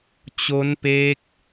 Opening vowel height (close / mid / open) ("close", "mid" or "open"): mid